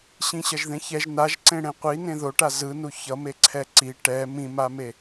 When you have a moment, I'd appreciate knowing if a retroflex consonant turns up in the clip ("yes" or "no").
yes